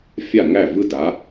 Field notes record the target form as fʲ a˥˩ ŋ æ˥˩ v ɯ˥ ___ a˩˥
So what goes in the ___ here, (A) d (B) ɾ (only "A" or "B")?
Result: A